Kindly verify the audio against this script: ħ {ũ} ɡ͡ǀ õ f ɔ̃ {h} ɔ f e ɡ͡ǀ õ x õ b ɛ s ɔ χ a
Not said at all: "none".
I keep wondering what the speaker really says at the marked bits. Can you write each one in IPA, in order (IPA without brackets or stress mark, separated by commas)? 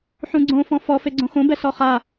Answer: ũ, f